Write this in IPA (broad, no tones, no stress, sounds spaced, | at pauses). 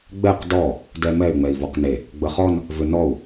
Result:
ɡ͡b ɛ q d ɔ | d ɛ m ɛ y̯ ŋ͡m ɛ i̯ v ɔ q n e | ɡ͡b ə χ ɔ n | v ʏ n ɔ u̯